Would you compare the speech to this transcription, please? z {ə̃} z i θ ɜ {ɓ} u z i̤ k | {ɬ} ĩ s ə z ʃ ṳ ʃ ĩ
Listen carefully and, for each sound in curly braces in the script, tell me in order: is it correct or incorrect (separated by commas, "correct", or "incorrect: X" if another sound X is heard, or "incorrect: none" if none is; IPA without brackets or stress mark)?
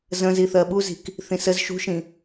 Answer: correct, correct, incorrect: θ